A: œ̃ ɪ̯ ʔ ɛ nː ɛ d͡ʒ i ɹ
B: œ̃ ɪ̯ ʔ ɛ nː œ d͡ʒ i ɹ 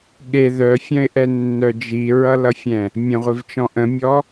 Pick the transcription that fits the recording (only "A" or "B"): B